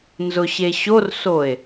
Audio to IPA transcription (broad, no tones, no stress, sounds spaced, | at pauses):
n z ʊ ɕ e ɕ o r s o e̯